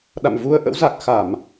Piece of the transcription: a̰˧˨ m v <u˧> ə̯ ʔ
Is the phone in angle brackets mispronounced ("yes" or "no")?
no